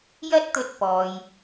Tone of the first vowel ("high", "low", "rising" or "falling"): high